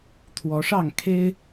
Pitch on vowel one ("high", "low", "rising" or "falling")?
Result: rising